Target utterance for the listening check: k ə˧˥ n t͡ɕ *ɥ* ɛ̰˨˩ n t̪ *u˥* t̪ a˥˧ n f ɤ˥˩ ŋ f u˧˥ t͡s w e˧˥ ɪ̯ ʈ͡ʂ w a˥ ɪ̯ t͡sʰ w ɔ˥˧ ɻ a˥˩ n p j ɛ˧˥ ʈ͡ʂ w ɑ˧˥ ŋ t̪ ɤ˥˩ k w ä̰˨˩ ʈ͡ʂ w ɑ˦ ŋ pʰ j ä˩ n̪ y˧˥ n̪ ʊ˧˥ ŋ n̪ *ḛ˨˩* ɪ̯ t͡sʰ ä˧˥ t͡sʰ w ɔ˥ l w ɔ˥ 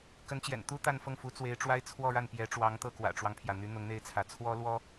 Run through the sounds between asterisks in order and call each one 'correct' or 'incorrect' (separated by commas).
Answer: incorrect, correct, incorrect